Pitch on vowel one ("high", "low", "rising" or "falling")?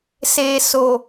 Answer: low